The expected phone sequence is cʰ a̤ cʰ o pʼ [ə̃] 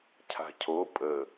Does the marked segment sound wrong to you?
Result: yes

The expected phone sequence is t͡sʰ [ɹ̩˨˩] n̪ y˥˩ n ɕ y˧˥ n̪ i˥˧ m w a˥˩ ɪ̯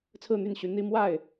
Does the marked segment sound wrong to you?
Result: yes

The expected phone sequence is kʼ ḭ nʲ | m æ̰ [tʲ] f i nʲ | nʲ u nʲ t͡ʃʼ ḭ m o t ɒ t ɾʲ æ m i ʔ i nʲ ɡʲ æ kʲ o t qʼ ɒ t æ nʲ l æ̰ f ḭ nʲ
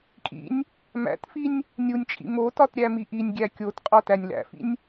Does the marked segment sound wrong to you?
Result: yes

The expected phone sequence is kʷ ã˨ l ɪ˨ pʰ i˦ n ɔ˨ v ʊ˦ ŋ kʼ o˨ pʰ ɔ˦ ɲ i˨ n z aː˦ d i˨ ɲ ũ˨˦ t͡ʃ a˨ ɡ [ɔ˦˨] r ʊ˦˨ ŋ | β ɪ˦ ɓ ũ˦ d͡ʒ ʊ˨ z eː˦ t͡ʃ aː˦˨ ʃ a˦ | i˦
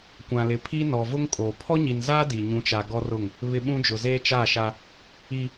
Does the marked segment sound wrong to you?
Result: yes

